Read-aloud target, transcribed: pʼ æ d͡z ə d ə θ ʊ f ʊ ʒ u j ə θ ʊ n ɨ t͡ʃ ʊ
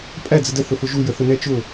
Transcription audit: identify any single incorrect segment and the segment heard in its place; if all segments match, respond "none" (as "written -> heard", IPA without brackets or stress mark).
ɨ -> ɛ